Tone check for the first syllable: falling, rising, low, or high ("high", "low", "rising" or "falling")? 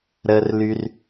low